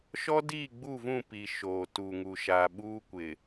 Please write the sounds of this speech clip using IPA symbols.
ʃ ɔ˦ d iː˦˨ ɡ͡b u˦˨ v ũ˦˨ p i˨ ʃ oː˨ t u˨ ŋ u˨ ʃ aː˨ ɓ uː˦ kʷ ɪ˨

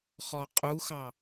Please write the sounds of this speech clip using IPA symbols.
χ ɔ qʼ u x ɑ

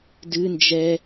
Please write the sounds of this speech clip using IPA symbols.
d ɨ n d͡ʒ ɛ

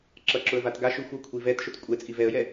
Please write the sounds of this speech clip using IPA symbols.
ǁ ʌ ǁ ʊ ə̯ v a t ɡ a ʃ ʉ xʷ ʌ kʷʰ i v ɛ t ʃ ʊ t kʷʼ ɛ t͡sʼ i v ɛ ə̯ j ɛ

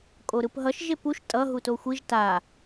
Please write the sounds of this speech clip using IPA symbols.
kʼ o ɾ ɯ p ɦ ʌ ʃ ʒ e p u ʃ tʼ ʌ ɦ u t o xʷ i ʒ t a

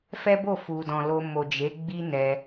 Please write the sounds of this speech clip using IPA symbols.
f ɛ˦ b o˦˨ f u˨ d ɔ̃˨ l o˧ m o˨ d͡ʒ e˨˦ ɡ͡b i˦ n ɛ˧

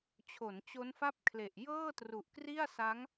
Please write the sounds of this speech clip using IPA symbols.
t͡ɕʰ o˩˦ n t͡ɕ o˦˥ n f a˥˩ p̚ kʰ l e˨˩ ʔ j ɤː˥˩ t r u˨˩ ʔ k r i˥˩ a̯ s a˦˥ ŋ

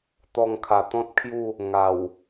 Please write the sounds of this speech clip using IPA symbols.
t̪ ɔ˧ ŋ kʰ a˨˩ t̪ ɔ̃˦ t̚ kʰ j u˥˧ | ŋ a˨˩ w

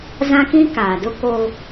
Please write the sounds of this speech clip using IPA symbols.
z ã˦ k ĩ˦ k aː˨ d ʊ˦ k o˦

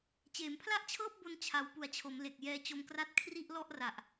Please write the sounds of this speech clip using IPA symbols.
t͡ɕ eː˩˦ m pʰ l a˥˩ ʔ t͡ɕʰ ɤː˥˩ p̚ b o˧ n t͡ɕʰ a˨˩ w p u˨˩ a̯ t͡ɕʰ o˩˦ m l e˨˩ k̚ j ɛː˧ t͡ɕ o˧ m k r a˥˩ t̚ kʰ r i˥˩ ʔ l ɔ˥˩ ʔ r a˨˩ ʔ

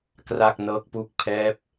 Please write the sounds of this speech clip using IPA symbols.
k r a˥˩ k̚ n ɤː˦˥ k̚ p u˥˩ k̚ pʰ ɛː˦˥ p̚

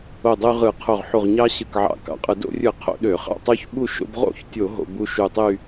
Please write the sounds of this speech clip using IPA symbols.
o˧˩ dˤ y˧ ʁ ɯ˧˩˧ qʰ o˧˩ ʁ ħ u˧˩ ʁ ɲ ɑ˦˥ ɕ ɯ˧˩ k ʕ ɑ̰˧˩˧ k ɑ̰˧˩˧ qʼ ɯ˧˩˧ d o̰˧ rʲ ɯ˧˩˧ qʰ o̰˧˩˧ ɗ ø˧˩˧ χ ɑ̰˥˨ tˤ u˦˥ ç ɓ u˥˨ ʃ o̰˧ b ʁ o̰˥˨ ç tʲ o˧˩˧ ɦ o̰˧ b u˦˥ ʃ u˧˩ tˤ y˥˨

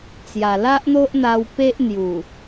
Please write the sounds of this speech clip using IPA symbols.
t͡s j a˨˩ l a˦ ʔ n̪ o˦ ʔ n̪ a˧ w p e˦ ʔ n̪ j u˨˩

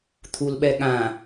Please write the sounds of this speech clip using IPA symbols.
t̪ʰ u l ɓ ɛ ɠ ã

